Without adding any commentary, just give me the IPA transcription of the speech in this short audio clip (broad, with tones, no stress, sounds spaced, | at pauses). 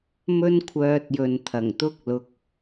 m ɵ˥ n kʷʰ œː˧ t̚ j ɵ˨ n t̪ʰ ɐ˨˩ ŋ t̪ ʊ˥ k̚ l ʊ˧ k̚